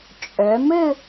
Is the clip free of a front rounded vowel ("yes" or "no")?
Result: no